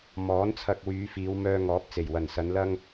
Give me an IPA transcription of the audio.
m ɔː˨˥ n t͡sʰ ɐ˧ k̚ w yː˨˧ f iː˨˧ w m œː˧ ŋ ɔː˨˥ p̚ t͡s e˨˩ j w ɐ˨˩ n s ɐ˨˧ n l ɐ˥ ŋ

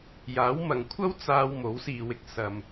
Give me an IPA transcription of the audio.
j aː˨˥ w m ɐ˨ ŋ kʷʰ ɐ˥ w t͡s aː˧ w m o˨˥ w s iː˨ w ɪ˧ k̚ s ɐ˨ m

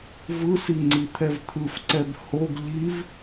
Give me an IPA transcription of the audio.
v ɯ s i ŋ͡ǀ i t̪ʰ ɛ v t̪ʰ ɯ f ǀ ɛ b h o ɡ ʎ i v

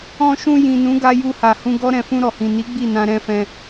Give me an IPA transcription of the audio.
ɔ̃˧ ʃ ũ˧ j ĩ˨ n ũ˨˦ ɡ a˧ j u˧ h a˨ h ũ˧ ɡ ɔ˦ ɾ ɛ̃˧ f ũ˧ ɾ ɔ˨ h ĩ˨ n i˨˦ ɡ͡b i˦˨ n ã˧ ɾ ɛ̃˧ f ɛ̃˧

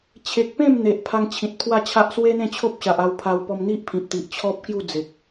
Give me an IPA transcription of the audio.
t͡ɕʰ e˨ k̚ p ẽ˥˧ m n̪ e˨ ʔ pʰ a˧ ŋ t͡ɕʰ ĩ˨ t̚ pʰ w a˥˧ t͡ɕʰ a˦ ʔ s w e˦ n̪ ẽ˥˧ t͡ɕʰ o˦ p̚ ɕ a˨ ʔ a˧ w pʰ a˧ w p ɔ˧ m n̪ i˦ ʔ pʰ ĩ˨ p̚ t̪ i˨ ʔ t͡ɕʰ ɔ˦ p̚ k j u˥˧ d͡z e˨ k̚

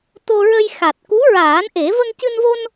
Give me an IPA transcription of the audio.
t̪ o˧ ɹ ə˧ j x a˨˩ t̚ k u˧˥ ɹ aː˨˩˦ n ʔ e˨˩˦ v ə˧ ŋ c ɨ˧ n v o˧ n

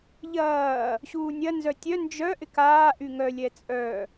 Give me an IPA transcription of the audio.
ʎ ɐː | ɕ uː nʲ ɐ n z œ tʲ œ n d͡ʒ œ ʔ ɪ k aː ʔ y ŋ œ lʲ ɛ t͡sʼ œ

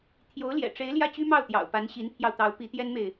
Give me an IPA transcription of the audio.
t̪ʰ j o˧˥ ʊ̯ l j ɛ̰˨˩ ʈ͡ʂ e˧˥ ɪ̯ l j ä˥˩ t͡ɕ y˥ m ɑ˥˩ ʊ̯ t̪ j ɑ̰˨˩ ʊ̯ p a˧˥ n ɕ i˧˥ n pʰ j ɑ˧ ʊ̯ t̪ ɑ˧˥ ʊ̯ p i˧˥ t̪ j ɛ˥ n m e˨ ɪ̯

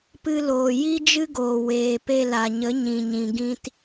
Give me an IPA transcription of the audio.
p ɨ˧ l oː˨ j i˦ d͡ʒ ɨ˦ ɡ oː˨ w eː˨ p e˧ l a˨ ɲ ə˨˦ ɲ ĩ˨ ɲ ĩ˨ ɡ ĩ˧ t

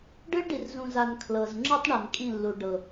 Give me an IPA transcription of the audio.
ɖ ɯ˦ ɭ ɖ i˨ r z ũ˨ z a˨ n kʰ l ɤ˨ z ŋ͡ǁ ɯ˦ tˤ ɳ a˨ n kʼ ĩ˦˨ lː u˨ ɖ ɤ˨

